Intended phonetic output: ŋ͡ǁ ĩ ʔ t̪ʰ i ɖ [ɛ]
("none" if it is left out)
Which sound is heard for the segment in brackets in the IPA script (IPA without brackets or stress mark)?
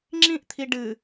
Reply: ɨ